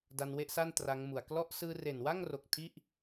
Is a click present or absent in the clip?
absent